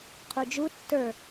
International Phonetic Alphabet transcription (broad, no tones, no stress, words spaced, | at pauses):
qʰud͡ʒu tːə˞